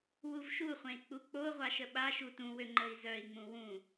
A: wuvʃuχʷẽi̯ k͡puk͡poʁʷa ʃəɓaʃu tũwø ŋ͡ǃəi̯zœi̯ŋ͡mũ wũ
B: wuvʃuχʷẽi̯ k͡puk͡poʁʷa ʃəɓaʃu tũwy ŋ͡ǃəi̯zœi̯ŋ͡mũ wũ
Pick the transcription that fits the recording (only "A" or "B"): A